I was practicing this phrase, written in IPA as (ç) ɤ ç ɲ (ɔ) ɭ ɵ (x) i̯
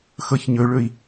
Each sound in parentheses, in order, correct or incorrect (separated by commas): incorrect, incorrect, incorrect